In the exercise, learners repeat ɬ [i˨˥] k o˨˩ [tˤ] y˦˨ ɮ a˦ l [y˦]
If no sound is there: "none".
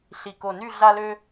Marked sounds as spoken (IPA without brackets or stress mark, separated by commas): i˨˩, n, ø˦